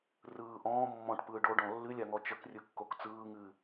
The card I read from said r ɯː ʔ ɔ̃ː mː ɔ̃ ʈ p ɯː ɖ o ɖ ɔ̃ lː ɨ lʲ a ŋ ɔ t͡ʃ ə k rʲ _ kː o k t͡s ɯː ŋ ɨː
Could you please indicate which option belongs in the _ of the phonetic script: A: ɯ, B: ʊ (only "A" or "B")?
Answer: A